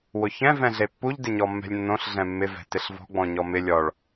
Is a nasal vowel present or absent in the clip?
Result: present